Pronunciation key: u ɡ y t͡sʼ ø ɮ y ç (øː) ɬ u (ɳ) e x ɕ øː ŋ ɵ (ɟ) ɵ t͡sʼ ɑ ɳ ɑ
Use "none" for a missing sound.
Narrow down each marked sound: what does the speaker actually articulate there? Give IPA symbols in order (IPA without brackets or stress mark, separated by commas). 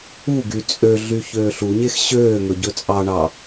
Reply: øː, ɲ, ɟ